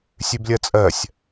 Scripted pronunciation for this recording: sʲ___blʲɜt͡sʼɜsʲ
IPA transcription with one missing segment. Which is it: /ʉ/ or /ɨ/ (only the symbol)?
ʉ